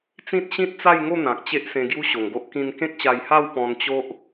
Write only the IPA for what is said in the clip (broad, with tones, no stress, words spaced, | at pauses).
t͡sĩ˦t̚ɕĩ˦t̚t͡sa˥˧jŋo˥˧ n̪ã˨k̚t͡ɕe˦ʔ sẽ˧ɡju˦ɕo˨˩ŋɡo˦ʔ kĩ˧nkẽ˦k̚ɕa˧jha˥˧w pɔ̃˧nt͡ɕo˦ʔ